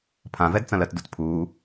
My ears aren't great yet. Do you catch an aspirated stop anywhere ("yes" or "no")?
yes